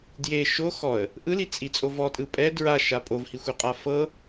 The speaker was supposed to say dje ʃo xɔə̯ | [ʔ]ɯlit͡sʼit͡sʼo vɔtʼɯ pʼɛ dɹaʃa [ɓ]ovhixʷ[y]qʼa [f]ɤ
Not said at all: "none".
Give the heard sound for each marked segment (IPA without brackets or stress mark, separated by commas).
ʔ, pʼ, e, f